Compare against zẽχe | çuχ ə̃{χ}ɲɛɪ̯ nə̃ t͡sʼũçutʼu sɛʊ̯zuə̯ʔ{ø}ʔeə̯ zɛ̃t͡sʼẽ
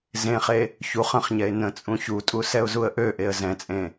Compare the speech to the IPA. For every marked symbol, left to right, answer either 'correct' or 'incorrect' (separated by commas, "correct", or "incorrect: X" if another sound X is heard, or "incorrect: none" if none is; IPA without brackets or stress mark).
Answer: correct, correct